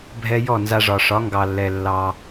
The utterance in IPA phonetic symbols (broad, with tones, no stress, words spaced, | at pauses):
bʱɛ˧ jɔ˦˨nza˧ʐɒ˨ ʂɒ˨˦ŋɡɑ˨lːɛ˨ lːɑ˧